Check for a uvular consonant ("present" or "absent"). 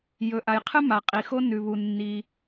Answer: present